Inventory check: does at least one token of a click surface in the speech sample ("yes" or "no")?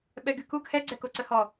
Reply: yes